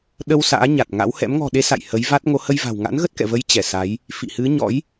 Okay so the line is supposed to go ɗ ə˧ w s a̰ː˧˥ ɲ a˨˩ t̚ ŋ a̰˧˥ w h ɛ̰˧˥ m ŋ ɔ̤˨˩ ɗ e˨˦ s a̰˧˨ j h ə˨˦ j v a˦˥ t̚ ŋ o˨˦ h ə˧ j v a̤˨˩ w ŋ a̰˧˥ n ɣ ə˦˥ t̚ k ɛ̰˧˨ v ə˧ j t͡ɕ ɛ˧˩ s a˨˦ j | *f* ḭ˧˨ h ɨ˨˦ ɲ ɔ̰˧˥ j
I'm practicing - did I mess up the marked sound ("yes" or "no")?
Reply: no